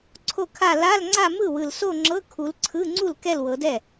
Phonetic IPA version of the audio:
ǀʰ o˥˩ kʰ a˥˧ l a˧˥˧ l ŋ͡ǀ a˥˧ m ɯ˥˩ w ɯ˨ l s o˥˧ ŋ͡ǁ ɤ˧˥˧ kʰ u˨˦ l ǀʰ ɯ˧˥˧ ŋ͡ǀ u˥˩ l k ɛ˥˧ l w ɤ˨˦ d ɛ˥˩

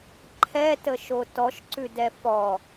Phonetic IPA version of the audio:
ǃʰ ɛ t ə ʃ o t ɔ ʃ ǀ ʉ d ɛ f ɔ

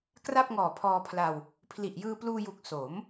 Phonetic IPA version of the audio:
k r a˥˩ p̚ ŋ ɔː˨˩ pʰ ɔː˧ pʰ l a˧ w | pʰ l i˨˩ ʔ j ɯː˧ p l uː˧ j u˨˩ k̚ s o˩˦ m

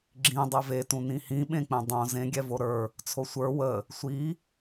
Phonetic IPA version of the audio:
ɡ͡ǁ ĩ dˤ e v e t ũ n ĩ h ĩ ɓ ẽ k͡p ẽ dˤ õ z ẽ ɡʲ ɛ v o ɾ ə˞ | t͡sʰ o sʷ ə˞ w ə | sʷ i

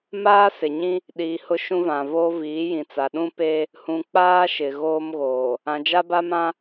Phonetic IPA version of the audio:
m aː˦ s ɪ˨ ɲ ĩ˦ | ɗ iː˨ h ʊ˦ ʃ ũ˦ v ã˨ v oː˦ v iː˨˦ j ĩ˨ t͡s a˨ ɗ ũ˦ p eː˦ | h ũ˨ k͡p aː˦ ʃ ɪ˨ ɣ oː˦ m ɣ oː˨ | ã˨ d͡ʒ a˦ b a˦ m ã˦

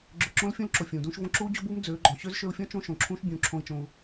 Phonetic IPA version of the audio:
ɡ͡ǁ ø˨ ǁ õ˧ l fʲ ũ˦ l ǁ o˨ fʲ ũː˨ d ũː˦ ʃ v õ˦ ǁ uː˦ d͡ʑ o˦ b uː˦ m d͡z øː˨˦ ɡ͡ǃ ɔ̃˨ ɕ ø˦ z ʃ ø˧ u̯ fʲ ɔ̃˦ t͡ʃ õ˦ ʃ õ˨ ǁʰ ũː˦ ʃ bʲ ũː˨ ǁʰ õ˧ i̯ t͡ʃ õ˧ u̯

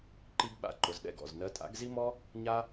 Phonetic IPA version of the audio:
ǃ i˥ ɡ ɓ a̰˥ ǃ ʊ˨ z ɗ ɛ̰˥˩ ɡ ɔ̰˥˩ z n ɜ˧˥ tʼ a̰˧˥ ɡ z i˥ m ɔ˥ | ɲ a˥

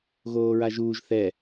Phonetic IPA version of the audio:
ɣ oː ɹ a ʒ uː ʒ θ ɛ

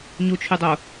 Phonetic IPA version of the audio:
ɲ u t͡ʃʰ y dˤ o

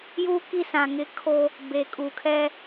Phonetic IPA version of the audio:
j uː˦ k i˦˨ s ã˨ ŋ ɪ˦ kʰ o˦ | b eː˨ kʼ uː˨ kʰ ɛ˦

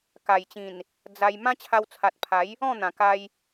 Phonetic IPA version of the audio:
k a˨˩ j t͡ɕ ĩ˨˩ n | d͡z a˧ j m ã˦ t͡ɕʰ a˧ w t͡sʰ a˨ t̚ pʰ a˨˦ j | ɔ̃˥˧ n̪ ã˨˩ k a˧ j

